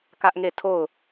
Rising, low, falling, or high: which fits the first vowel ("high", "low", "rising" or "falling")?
high